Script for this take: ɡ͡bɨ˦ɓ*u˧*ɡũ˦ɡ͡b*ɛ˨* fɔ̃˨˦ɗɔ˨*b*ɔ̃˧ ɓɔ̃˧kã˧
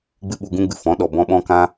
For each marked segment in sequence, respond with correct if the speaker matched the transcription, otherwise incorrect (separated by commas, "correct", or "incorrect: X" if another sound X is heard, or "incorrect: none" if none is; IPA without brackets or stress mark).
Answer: correct, incorrect: ɨ˨, correct